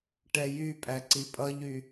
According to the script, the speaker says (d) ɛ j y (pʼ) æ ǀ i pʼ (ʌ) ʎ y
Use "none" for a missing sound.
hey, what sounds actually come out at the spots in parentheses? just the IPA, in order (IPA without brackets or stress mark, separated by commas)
ʈ, pʼ, ʌ